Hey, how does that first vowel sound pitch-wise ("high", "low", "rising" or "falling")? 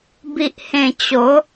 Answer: low